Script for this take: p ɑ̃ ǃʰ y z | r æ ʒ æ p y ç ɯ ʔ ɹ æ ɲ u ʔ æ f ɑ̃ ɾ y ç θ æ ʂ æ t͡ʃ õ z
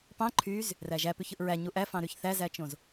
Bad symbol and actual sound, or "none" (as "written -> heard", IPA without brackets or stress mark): ʂ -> z